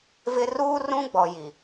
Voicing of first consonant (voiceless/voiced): voiced